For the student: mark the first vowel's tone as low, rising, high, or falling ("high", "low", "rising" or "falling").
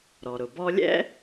low